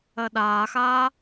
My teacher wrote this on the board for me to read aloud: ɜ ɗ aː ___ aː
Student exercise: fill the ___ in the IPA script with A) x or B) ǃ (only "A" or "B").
A